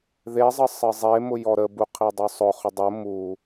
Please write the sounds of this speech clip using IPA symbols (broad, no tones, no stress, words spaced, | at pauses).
ðezˤə sˤɘzˤemʊ jɔɾəbu qʰidˤʊsˤʊχʊ dˤʊ mu